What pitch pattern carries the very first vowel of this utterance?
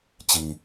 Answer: low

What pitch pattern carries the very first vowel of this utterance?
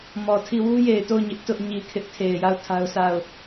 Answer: low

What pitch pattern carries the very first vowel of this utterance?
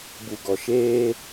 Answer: low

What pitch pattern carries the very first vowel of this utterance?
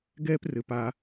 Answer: high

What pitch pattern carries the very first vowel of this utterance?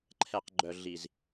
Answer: low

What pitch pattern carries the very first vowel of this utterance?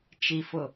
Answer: low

